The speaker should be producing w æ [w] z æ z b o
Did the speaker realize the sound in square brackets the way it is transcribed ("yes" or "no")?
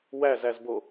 no